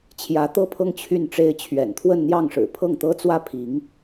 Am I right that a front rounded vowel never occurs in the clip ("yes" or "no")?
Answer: no